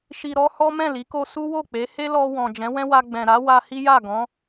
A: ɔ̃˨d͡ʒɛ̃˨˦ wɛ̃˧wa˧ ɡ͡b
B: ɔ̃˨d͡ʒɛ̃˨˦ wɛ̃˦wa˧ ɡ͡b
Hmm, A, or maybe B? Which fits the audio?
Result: B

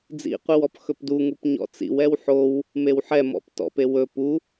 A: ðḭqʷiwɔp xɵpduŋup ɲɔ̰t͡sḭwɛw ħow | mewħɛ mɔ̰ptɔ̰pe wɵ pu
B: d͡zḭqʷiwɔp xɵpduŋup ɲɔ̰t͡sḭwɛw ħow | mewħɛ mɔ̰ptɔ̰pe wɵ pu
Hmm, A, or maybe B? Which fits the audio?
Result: B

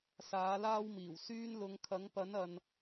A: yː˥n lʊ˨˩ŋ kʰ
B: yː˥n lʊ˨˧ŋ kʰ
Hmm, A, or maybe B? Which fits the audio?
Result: B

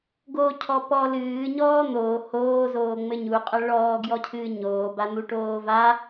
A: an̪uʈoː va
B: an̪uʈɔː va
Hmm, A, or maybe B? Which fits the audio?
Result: A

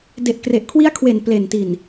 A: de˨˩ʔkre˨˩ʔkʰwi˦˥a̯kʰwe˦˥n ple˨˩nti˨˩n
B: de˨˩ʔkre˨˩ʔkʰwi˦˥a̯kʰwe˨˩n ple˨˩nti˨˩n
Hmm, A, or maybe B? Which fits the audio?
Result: B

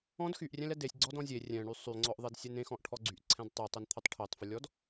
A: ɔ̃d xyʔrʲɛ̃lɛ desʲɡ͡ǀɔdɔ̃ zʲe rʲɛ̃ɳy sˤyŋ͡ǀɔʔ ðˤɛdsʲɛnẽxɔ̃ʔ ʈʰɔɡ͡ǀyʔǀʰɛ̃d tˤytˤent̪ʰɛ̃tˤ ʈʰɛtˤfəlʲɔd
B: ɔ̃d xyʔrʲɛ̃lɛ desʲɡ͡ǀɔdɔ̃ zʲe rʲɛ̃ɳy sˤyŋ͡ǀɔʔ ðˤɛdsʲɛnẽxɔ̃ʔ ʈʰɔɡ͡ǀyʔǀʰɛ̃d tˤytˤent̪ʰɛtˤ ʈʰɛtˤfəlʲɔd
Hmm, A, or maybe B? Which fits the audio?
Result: B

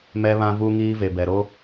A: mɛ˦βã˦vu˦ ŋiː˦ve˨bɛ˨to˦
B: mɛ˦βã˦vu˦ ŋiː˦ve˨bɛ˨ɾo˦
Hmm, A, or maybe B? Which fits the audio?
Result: B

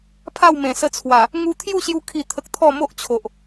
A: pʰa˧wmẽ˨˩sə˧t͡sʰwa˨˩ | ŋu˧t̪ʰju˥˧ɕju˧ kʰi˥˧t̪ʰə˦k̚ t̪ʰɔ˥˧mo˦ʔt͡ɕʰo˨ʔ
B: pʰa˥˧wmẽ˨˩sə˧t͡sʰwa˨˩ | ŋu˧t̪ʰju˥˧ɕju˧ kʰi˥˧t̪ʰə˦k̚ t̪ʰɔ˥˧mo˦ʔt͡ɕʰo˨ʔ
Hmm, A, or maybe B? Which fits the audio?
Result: B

